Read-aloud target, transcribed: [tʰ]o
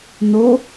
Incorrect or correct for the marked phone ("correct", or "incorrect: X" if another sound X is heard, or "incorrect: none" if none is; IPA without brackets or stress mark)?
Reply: incorrect: n